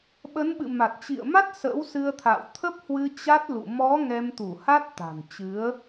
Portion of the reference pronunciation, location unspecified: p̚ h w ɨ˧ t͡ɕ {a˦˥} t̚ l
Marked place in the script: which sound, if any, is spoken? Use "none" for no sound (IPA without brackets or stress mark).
a˦˥